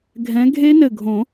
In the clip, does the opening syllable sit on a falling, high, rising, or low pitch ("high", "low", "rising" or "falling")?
rising